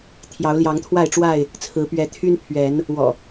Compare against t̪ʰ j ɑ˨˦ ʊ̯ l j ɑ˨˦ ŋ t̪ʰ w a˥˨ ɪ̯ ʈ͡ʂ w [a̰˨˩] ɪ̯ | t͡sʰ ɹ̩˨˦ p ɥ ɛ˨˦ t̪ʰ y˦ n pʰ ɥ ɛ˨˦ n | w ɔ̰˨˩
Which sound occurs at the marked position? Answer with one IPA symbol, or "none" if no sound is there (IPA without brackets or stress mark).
a˥˨